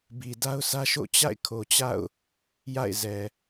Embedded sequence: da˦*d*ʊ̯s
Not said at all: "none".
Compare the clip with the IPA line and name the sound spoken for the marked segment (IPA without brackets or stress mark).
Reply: none